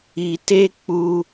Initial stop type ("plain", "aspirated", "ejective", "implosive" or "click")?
plain